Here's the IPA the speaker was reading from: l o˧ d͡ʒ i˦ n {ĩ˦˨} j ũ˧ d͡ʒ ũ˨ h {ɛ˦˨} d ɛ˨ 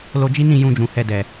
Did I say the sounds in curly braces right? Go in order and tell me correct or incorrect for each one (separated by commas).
correct, incorrect